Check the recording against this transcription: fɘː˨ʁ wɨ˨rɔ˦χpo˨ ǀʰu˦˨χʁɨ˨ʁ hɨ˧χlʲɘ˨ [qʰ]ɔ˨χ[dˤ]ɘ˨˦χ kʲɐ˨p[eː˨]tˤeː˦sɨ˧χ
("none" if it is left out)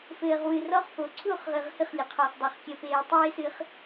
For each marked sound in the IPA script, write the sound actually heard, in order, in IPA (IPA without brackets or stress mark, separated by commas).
qʰ, dˤ, eː˨